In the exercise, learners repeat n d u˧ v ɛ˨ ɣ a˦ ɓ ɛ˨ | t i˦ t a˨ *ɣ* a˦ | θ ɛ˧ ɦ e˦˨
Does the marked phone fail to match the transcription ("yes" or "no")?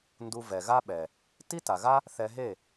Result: no